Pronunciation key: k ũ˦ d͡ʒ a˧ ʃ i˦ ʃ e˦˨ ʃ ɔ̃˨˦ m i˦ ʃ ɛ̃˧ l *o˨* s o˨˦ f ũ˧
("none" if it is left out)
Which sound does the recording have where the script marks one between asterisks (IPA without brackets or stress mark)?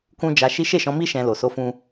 o˨